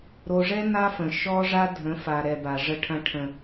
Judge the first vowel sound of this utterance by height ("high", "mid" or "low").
mid